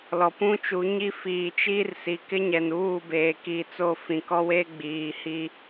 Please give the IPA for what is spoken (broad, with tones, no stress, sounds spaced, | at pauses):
l ɔ˨ p ũ˦ t͡ʃ u˨˦ ɲ i˦ f iː˨ t͡ʃ iː˦ r s i˨ k ɪ˦ ɲ ɛ˨ n uː˦˨ b eː˨ k i˨˦ t͡s o˦˨ f ĩ˨ k ɔ˦ w e˦ ɡ͡b iː˨ h i˦